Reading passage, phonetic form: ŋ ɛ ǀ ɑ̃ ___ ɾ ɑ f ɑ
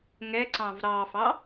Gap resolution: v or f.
v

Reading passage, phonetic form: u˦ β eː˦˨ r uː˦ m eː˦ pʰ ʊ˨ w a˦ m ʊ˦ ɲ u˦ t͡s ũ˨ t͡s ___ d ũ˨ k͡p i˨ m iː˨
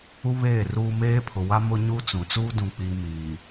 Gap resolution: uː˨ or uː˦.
uː˦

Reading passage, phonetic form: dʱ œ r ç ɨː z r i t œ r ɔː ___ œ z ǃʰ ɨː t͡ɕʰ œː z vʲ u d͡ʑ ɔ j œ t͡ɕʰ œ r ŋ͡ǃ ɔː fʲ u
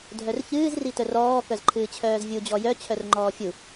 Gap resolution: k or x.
k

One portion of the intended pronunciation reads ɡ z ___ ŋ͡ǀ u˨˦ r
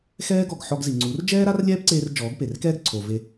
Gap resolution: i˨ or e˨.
i˨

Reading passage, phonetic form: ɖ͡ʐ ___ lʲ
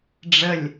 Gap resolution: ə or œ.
ə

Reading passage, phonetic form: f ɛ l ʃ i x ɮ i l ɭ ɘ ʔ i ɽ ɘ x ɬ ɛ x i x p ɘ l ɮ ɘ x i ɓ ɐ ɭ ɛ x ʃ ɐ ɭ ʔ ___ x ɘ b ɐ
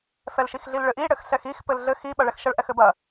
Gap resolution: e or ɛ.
ɛ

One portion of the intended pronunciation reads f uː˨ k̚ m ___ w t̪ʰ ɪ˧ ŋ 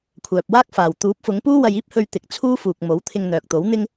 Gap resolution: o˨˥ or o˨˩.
o˨˥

